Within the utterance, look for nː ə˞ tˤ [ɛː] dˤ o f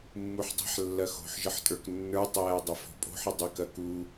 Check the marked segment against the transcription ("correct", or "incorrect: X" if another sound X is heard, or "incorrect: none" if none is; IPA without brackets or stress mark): correct